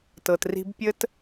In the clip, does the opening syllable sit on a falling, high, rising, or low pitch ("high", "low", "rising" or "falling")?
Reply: low